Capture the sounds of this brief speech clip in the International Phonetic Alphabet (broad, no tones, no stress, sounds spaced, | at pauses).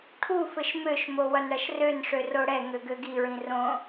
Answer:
ʈʰ u f ɘ ʃ m ø ʃ m o w ʌ n ɽ ʌ ʃ r ø n ʂ ø r o ɽ ɛ ŋ ø ɡ ø ɡ i ɹ ĩ r õ